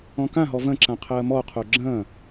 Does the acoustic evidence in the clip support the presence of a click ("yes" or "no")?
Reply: yes